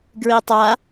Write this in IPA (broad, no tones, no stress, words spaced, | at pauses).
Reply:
ɡɹitˤa